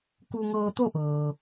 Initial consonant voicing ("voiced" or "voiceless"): voiceless